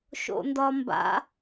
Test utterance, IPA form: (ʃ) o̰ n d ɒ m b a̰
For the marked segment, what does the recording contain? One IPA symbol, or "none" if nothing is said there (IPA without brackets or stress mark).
ʃ